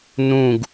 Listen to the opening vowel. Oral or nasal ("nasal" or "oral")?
nasal